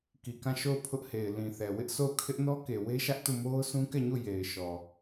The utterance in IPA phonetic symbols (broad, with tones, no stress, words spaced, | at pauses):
ki˨kã˦˨ʃo˦˨ʊ̯ pʰʊ˦ʔhe˨ɪ̯ lĩ˨θɛ˨ wɪ˦ʔso˦˨ʊ̯ kʰɪ˦ʔnɔ˦ke˨ we˦ʃä˦ʔtu˦˨mo˦ʊ̯ sũ˦kɛ˦˨ɲu˦˨ je˨ɪ̯ʃɔ˨